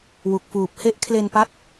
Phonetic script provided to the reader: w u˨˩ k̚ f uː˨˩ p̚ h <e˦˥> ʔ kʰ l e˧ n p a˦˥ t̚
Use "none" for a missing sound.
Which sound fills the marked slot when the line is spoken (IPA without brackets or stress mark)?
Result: e˦˥